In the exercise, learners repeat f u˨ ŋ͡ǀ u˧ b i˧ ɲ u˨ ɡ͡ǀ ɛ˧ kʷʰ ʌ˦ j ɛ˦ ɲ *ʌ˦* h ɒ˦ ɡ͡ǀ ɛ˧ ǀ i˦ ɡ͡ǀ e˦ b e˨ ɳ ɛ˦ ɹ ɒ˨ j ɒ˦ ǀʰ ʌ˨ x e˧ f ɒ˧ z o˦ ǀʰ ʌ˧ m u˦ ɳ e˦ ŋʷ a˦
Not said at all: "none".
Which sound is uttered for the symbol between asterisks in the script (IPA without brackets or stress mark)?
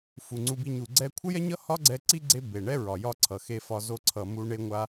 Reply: ʌ˦